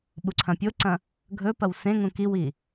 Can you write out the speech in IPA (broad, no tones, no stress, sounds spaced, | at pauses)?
ɓ u ǀʰ ɐ̃ pʲ o ǀ ɐ̃ | ɡʱ ɵ p ɐ w s ẽ ŋ ũ k i w i